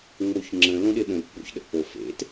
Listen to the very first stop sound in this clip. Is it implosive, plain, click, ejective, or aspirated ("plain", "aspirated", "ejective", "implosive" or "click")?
click